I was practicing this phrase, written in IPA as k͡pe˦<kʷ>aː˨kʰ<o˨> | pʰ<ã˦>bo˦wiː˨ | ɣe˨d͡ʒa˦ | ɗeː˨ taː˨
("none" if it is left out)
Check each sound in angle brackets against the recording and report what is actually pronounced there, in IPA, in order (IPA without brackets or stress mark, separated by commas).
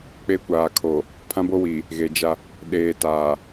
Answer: kʷ, o˨, ã˦